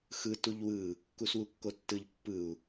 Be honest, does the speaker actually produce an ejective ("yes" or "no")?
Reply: no